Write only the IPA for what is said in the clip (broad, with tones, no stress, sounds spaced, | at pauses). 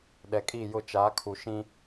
ɗ ɛ˨ kʼ i˦˨ j ʊ˦ t͡ʃ a˨˦ kʰ u˨ ʃ ĩ˦